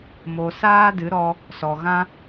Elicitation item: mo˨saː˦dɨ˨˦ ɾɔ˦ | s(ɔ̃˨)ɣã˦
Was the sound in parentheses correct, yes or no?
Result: no